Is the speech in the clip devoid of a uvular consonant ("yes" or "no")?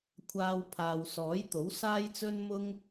yes